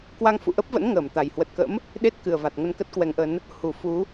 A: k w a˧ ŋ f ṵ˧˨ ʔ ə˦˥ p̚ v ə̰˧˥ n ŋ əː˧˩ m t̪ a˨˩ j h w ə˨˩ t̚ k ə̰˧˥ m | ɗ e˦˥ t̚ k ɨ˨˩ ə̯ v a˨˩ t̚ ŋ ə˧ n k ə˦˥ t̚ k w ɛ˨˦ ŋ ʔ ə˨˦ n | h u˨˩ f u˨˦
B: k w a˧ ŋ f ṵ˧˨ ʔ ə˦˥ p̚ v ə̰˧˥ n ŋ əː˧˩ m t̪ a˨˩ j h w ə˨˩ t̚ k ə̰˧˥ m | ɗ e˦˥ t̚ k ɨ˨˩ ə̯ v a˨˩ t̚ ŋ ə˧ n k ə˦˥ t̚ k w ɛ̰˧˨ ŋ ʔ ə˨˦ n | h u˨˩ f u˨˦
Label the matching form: A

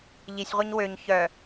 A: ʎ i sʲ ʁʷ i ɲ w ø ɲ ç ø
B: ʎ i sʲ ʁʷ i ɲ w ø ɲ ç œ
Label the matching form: B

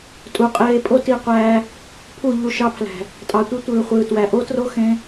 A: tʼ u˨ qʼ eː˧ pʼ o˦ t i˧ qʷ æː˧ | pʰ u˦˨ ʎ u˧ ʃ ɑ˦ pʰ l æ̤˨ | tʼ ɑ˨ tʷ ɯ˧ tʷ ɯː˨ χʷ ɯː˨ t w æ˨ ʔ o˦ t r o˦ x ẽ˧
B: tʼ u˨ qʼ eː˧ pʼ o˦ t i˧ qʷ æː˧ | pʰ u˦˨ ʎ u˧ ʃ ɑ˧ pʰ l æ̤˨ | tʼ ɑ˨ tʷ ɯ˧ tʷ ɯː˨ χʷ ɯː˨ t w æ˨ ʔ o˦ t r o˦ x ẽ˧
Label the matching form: B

